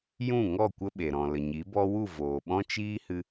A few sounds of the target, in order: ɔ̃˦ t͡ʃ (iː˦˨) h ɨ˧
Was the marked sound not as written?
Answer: yes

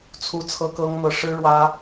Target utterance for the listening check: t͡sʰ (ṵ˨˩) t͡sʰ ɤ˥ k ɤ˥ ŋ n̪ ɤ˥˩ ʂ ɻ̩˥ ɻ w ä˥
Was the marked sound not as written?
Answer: yes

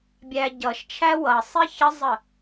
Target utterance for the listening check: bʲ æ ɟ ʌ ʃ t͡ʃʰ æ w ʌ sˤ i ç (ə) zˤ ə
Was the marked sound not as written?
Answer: no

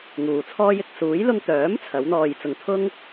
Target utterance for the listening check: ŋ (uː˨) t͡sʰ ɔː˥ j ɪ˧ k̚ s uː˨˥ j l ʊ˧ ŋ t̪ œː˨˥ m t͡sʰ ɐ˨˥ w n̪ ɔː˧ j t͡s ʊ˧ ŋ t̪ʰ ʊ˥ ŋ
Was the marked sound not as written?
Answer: no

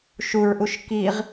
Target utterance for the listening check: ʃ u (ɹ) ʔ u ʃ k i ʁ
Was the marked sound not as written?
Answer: no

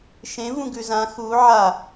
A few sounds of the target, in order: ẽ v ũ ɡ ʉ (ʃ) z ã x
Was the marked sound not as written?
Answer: yes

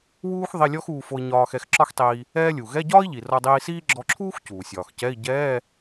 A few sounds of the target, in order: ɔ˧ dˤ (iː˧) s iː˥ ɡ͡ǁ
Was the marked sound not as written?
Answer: no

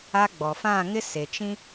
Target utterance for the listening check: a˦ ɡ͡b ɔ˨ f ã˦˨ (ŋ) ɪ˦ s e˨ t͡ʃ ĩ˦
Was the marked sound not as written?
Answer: no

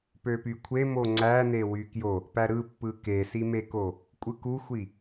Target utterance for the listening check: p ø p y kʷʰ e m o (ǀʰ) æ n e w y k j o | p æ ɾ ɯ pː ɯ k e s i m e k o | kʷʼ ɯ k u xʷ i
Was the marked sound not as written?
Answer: yes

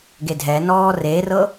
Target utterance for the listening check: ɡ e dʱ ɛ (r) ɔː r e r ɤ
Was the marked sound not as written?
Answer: yes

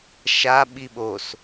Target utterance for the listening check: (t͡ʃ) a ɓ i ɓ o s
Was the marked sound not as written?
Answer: yes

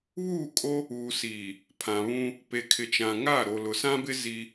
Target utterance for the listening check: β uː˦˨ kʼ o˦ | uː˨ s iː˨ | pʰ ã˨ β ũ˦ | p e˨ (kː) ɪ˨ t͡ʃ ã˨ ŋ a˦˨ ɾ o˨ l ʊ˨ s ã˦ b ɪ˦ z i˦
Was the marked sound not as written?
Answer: yes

